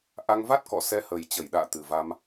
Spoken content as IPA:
ʔ a˧ ŋ v a˦˥ t̚ k ɔ̰˧˨ s ɛ˧ h əː˨˩ j t͡ɕ ə˧˩ j ɗ a̰ː˧˨ t̪ ɨ˨˩ v a˧ m

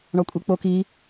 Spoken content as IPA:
ɳ ɒ kʷʼ i k͡p o k i

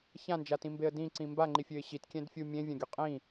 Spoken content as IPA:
ç ã n d͡ʒ a t ĩ m b e ə̯ d ĩ ǀ ĩ m b a ŋ͡ǃ i fʲ ø ɪ̯ ɕ i t kʲ ɛ̃ d fʲ u mʲ ẽ vʲ ã ɡʲ u qʼ ĩ

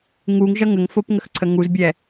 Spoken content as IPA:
ŋ u ŋ ʒ ʌ ŋ ə ŋ f o p ŋ ə x ǀʰ ə ŋ u z bʲ ɛ

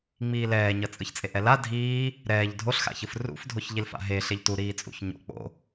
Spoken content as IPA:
ŋ͡m iː l ɛː ɲ ʌ t͡sʼ ɯ ç t͡sʼ e ʔ ɛ l a dʱ iː | ɾ ɛː ʎ dʱ o ɬ x a̰ ç ɯ f r ṵ f dʱ o ç ʎ i l f a̰ ɦ e ɬ e ʎ t u ɾ iː t͡sʼ ṵ ç ɲ o̰ k͡p o̰

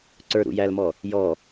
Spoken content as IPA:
ǀ ə˞ ɾ ṵ j æ l m ɔ | j ɔ

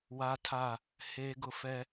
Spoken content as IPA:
w a˦ tʰ a˦˨ | h eː˦ ɡ ʊ˦ f ɛ˦

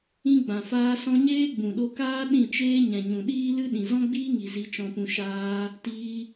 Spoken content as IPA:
ĩ˧ ɡ͡b ã˨ f aː˧ s ɔ̃˧ ɲ eː˦ ɡ͡b ũ˨ ɗ o˧ k aː˦ ɗ ĩ˦˨ t͡ʃ eː˦ ɲ ɛ̃˨ ɲ ũ˨ ɗ iː˦ l ɨ˦ ɗ ĩ˨ z ɔ̃˦ ɡ͡b iː˦ ŋ i˨ z i˧ t͡ʃ ɔ̃˧ p ũ˧ ʃ aː˧ | t iː˦

